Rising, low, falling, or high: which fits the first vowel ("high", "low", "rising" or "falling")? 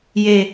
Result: low